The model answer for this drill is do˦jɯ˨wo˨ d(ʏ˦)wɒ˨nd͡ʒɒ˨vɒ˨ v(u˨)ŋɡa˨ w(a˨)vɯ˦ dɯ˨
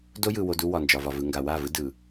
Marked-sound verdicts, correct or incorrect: incorrect, incorrect, incorrect

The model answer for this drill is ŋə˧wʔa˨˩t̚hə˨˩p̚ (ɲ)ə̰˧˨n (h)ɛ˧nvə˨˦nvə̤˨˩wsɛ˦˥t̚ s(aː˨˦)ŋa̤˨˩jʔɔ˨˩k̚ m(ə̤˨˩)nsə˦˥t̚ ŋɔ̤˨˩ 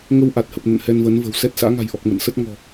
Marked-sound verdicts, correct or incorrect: incorrect, correct, incorrect, incorrect

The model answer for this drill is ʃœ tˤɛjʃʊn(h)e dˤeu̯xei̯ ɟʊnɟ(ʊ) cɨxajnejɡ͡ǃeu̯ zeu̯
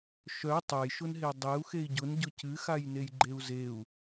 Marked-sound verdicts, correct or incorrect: incorrect, correct

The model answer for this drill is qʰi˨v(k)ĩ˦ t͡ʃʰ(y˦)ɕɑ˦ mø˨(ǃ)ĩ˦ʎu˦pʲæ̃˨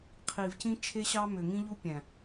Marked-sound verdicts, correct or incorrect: incorrect, incorrect, incorrect

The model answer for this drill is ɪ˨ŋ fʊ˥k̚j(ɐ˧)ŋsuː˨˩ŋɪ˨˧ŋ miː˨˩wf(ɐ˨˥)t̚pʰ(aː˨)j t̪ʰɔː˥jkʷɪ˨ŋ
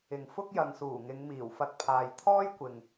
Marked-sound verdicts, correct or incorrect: incorrect, incorrect, correct

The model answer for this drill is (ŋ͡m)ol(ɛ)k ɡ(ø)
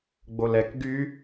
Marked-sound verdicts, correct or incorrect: incorrect, correct, incorrect

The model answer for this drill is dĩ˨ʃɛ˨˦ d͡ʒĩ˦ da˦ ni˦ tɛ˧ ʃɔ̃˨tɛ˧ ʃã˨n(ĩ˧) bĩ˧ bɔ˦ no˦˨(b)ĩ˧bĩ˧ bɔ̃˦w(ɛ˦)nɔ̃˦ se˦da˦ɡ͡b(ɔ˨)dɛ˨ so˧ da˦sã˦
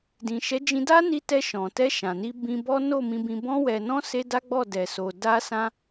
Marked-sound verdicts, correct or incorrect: incorrect, incorrect, incorrect, incorrect

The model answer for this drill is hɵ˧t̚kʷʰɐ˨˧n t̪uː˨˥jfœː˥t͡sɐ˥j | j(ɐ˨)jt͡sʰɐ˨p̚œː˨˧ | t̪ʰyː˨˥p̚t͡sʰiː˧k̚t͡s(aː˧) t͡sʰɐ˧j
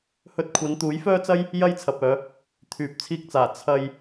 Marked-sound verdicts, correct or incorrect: incorrect, incorrect

